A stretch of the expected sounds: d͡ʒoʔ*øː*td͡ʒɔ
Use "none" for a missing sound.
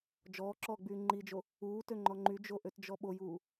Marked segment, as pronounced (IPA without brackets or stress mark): ø